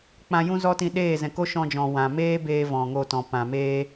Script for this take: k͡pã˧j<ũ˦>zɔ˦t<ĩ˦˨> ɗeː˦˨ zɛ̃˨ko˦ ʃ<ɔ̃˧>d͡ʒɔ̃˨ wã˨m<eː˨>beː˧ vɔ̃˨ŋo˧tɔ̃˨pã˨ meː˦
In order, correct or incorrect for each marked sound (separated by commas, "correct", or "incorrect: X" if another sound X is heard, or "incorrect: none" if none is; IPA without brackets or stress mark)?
correct, incorrect: ĩ˧, correct, incorrect: eː˦